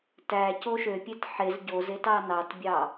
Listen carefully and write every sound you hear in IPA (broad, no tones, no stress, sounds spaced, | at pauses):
t æ c o ʃ ø pʲ e t ħ e z ɟ o z e t ɑ n ɑ t bʲ ɑ